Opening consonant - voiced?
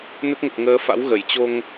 yes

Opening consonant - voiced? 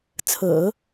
no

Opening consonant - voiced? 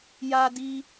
yes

